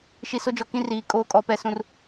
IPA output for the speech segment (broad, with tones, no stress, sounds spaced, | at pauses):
ʃ i˨ s o˦ d͡ʒ ɔ˨ k ĩ˦ r iː˨ kʼ oː˦ kʼ ɔ˦˨ p ɛ˦ s ũ˦ r